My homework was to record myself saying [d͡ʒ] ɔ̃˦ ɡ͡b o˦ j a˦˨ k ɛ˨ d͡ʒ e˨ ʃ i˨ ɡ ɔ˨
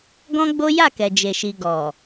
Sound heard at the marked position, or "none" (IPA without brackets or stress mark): ɡ